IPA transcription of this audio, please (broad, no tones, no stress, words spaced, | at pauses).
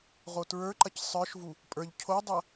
ʁotɹə˞ǃɐc sˤə˞ʃvu | pʼə˞ʎ cʰodˤɐ